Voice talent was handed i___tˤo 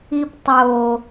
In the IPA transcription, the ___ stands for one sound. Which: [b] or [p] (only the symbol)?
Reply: p